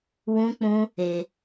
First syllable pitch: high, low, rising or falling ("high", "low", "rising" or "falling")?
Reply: high